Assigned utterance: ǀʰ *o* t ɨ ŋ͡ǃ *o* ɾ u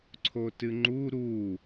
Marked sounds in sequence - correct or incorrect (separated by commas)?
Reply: correct, incorrect